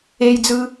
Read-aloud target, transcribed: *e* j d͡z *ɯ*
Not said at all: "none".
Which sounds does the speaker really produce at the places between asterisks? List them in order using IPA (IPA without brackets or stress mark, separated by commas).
e, ɯ